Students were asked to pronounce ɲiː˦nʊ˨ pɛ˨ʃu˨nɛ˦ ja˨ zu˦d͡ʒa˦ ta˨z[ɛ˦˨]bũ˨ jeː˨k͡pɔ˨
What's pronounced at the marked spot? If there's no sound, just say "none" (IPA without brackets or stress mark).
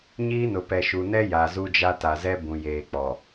ɛ˦